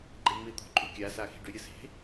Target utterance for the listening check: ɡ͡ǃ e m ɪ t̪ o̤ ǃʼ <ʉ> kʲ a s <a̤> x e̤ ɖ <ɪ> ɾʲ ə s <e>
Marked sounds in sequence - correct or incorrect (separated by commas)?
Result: correct, incorrect, incorrect, incorrect